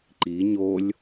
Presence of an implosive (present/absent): absent